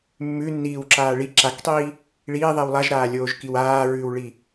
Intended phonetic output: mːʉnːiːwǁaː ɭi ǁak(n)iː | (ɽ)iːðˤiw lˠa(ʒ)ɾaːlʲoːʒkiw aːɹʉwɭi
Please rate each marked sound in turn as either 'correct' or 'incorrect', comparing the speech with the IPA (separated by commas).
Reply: incorrect, incorrect, correct